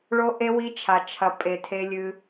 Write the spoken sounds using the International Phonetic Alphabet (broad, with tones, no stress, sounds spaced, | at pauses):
ɭ o˥ ʔ e˥ w i˥ t͡ʃʰ a˧ t͡ʃʰ ɐ˧ pʼ e˧ tʰ e˥ lʲ ɨ˥